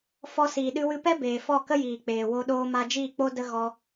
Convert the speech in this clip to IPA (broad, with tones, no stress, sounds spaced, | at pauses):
f ɔ˧ s iː˨ ɗ ɨ˧ w ɨ˧ p ɛ˦ b eː˨ f ɔ˦˨ k ə˦ j iː˨ k͡p eː˨ w o˧ ɗ oː˧ m a˧ d͡ʒ iː˦˨ k͡p o˦ d ə˦ ɣ ɔ˧